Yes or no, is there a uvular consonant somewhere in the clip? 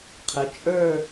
yes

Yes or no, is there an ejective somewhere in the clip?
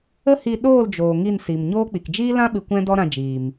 no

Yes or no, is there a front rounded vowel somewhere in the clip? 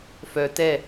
yes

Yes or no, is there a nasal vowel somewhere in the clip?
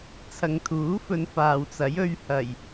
no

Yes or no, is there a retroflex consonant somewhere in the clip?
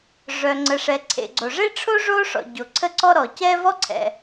yes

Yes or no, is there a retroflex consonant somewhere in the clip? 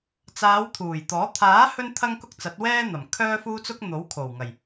no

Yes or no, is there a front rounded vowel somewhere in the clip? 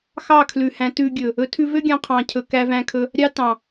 yes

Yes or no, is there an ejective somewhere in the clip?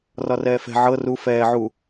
no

